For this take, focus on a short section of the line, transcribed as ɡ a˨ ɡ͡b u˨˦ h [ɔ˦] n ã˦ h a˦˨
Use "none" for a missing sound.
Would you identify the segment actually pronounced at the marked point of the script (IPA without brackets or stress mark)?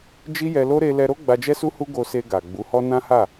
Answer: ɔ˦